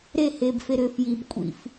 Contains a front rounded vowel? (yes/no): yes